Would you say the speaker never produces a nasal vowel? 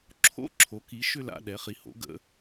yes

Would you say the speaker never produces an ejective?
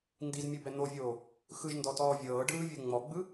yes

